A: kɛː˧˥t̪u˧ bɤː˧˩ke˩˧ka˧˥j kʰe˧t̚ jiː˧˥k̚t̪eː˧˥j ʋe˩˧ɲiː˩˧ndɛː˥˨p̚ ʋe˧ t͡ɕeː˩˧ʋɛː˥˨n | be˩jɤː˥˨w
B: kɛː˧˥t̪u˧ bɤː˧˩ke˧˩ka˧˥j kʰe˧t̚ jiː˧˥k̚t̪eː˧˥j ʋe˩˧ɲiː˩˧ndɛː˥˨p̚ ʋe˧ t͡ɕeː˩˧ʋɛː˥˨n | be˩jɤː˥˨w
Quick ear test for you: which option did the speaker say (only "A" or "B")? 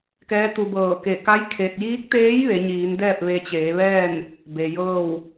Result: B